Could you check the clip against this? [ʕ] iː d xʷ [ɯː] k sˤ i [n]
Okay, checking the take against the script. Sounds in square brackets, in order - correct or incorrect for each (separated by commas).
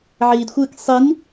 correct, correct, correct